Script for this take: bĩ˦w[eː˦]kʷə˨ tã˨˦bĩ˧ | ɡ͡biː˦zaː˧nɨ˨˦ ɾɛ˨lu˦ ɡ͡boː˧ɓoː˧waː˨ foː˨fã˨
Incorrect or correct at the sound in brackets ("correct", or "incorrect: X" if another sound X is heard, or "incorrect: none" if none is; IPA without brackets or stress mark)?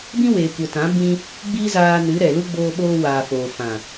incorrect: eː˨